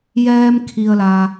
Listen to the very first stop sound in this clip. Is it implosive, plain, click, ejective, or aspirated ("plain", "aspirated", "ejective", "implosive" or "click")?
aspirated